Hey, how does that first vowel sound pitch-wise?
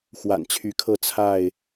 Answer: low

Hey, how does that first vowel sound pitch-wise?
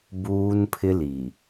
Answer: high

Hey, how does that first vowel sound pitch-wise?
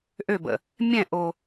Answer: falling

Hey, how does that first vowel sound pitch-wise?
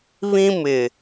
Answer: high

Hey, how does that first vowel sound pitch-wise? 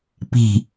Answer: falling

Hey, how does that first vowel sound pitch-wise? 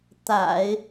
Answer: low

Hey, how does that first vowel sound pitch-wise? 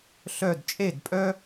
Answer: falling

